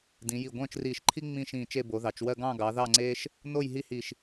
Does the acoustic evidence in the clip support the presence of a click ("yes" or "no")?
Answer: yes